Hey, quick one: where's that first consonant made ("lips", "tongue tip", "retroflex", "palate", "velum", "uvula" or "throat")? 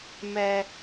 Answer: lips